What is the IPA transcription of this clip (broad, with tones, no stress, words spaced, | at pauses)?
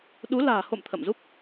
ɗu˨˦ la̤ː˨˩ho̰˧˨m t̪ʰə̰˧˨mzu˦˥k̚